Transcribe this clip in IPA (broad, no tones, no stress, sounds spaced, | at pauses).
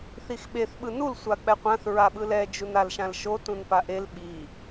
θ i x ɓ e θ ɓ ɯ n u l sʷ a k͡p ɛ qʷ ã θ ɹ a ɓ ɯ l ɛ d͡ʒ u n a l ʃ ã l ʃ o t ũ n p a ʔ e l ɓ i